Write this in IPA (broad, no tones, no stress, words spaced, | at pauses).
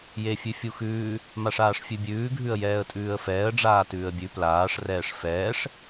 jefʲʉfʲuxʉː | maʂaːʂfʲʉbʲʉː ɡʱʉə̯jɛːə̯tʼʉːə̯fɛːə̯ ɖ͡ʐaːtʉːə̯bʲʉ plaːʂ rɛːʂfɛːʂ